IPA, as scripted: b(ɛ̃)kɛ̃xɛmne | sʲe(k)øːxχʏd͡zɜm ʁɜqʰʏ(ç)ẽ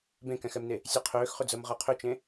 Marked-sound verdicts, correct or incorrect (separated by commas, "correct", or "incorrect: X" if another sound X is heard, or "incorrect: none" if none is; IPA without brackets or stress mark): incorrect: ẽ, incorrect: qʰ, incorrect: t͡ʃ